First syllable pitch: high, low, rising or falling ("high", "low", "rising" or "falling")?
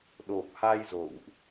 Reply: low